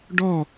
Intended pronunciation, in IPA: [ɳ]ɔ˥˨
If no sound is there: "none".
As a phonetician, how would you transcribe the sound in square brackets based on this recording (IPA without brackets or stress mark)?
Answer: ɖ